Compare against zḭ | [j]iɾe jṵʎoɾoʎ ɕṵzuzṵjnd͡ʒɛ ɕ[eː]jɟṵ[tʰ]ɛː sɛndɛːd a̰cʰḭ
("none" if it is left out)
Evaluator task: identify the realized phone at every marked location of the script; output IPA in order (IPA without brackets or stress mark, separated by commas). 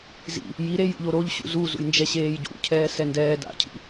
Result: j, eː, cʰ